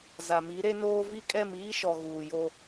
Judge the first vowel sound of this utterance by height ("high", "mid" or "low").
low